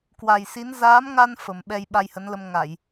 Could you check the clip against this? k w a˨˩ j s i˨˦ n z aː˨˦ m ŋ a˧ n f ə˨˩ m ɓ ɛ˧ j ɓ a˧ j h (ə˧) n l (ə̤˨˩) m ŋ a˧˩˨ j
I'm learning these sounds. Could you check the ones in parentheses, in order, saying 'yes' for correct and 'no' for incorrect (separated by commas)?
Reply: no, no